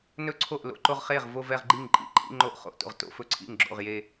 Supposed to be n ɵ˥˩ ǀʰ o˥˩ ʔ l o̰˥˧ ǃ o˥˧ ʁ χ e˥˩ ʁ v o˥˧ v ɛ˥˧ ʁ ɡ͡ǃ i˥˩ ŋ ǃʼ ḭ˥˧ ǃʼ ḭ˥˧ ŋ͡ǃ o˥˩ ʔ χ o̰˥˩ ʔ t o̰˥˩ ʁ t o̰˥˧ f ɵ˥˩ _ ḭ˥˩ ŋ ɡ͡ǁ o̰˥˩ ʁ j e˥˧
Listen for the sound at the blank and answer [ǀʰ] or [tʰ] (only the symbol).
ǀʰ